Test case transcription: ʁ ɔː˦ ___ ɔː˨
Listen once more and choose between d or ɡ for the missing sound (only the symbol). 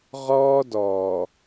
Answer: d